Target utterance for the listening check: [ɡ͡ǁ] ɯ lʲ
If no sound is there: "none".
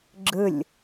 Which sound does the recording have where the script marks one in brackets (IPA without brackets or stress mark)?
ɡ͡ǁ